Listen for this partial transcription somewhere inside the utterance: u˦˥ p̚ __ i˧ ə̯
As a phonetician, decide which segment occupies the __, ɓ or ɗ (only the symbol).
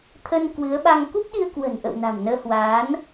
ɗ